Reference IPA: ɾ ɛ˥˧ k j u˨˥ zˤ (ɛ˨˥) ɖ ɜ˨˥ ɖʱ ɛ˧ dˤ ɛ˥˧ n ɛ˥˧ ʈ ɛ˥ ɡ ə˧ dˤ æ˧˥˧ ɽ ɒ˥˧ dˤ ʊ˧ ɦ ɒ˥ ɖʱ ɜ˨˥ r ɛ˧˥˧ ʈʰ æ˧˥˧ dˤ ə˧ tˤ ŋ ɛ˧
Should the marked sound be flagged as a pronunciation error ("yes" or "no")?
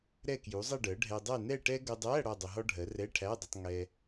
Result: yes